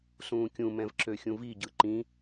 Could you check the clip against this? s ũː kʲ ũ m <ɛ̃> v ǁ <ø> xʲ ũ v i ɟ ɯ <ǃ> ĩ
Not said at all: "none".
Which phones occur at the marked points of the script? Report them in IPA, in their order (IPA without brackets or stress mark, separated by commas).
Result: ɛ̃, ø, ǃ